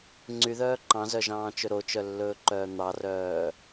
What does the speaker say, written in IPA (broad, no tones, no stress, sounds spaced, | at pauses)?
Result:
ŋ͡ǀ y ð œː ǃ ɑ̃ z œ ʒ ɑ̃ː t͡ʃ ɵ ɾ o t͡ʃ œ lː ɵː ǃ œː n̪ ɑ r œː